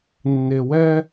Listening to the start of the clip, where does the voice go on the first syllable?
low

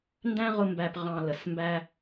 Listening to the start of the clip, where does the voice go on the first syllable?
high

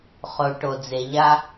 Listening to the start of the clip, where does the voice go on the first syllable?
low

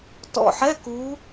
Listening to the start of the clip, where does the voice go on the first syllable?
low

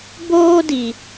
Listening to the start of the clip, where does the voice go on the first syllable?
high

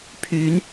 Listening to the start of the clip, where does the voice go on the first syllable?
rising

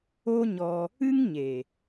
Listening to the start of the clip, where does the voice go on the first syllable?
high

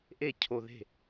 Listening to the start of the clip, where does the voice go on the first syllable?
falling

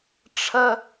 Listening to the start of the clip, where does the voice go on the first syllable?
high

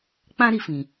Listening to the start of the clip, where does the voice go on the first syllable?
high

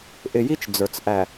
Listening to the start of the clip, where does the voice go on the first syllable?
low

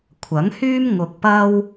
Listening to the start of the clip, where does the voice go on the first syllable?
rising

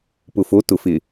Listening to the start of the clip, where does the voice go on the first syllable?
low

